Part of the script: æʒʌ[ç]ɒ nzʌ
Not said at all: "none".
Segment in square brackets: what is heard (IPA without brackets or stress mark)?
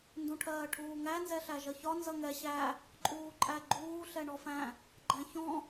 ç